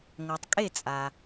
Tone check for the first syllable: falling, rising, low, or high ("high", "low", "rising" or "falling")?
low